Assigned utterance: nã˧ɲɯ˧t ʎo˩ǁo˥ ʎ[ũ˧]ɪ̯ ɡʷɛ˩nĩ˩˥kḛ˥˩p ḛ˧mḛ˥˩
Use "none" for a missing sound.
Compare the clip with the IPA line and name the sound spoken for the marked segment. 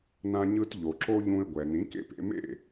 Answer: ũ˧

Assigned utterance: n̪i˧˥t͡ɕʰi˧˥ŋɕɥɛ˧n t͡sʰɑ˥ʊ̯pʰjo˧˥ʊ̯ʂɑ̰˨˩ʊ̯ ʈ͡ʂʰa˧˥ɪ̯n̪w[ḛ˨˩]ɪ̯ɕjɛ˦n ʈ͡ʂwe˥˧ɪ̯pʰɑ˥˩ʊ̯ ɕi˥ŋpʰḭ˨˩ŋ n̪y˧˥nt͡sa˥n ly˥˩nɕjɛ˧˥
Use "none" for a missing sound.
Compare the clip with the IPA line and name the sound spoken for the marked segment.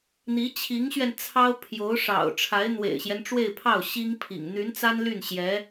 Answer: ḛ˨˩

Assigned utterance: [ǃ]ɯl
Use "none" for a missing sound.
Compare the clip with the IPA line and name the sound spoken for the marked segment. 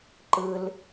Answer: ǃ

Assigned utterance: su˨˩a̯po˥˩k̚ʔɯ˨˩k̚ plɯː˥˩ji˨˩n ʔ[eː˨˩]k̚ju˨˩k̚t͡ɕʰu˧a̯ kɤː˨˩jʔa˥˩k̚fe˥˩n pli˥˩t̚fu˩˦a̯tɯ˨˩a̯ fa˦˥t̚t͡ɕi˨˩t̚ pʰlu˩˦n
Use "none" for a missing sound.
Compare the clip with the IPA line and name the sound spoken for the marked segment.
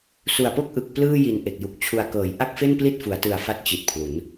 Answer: e˨˩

